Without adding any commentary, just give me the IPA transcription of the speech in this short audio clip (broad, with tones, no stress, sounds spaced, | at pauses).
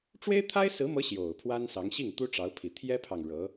ʈ͡ʂ w e˥ ɪ̯ t̪ʰ a˥ ɪ̯ s ɹ̩˧˥ m ɤ˧˥ ɕ j o˨˩ ʊ̯ pʰ w a˥ n s ɑ˧˥ ŋ ɕ i˥˩ ŋ t̪ u˥ ʈ͡ʂ ɑ˧˥ ʊ̯ pʰ i˨˩ t̪ʰ j ɛ˥ pʰ ɑ˨ ŋ ɻ ɤ˧˥